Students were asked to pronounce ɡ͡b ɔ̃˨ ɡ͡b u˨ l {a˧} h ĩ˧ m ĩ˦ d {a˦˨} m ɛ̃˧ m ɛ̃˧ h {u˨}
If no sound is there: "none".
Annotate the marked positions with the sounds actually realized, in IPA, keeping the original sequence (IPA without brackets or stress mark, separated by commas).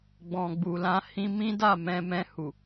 ã˧, a˦˨, u˨